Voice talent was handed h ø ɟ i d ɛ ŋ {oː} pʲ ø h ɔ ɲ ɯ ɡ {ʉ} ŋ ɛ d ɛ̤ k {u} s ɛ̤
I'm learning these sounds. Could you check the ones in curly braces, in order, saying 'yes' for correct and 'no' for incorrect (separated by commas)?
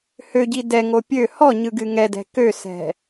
no, no, no